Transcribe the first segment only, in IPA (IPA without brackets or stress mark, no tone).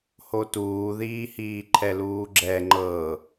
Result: h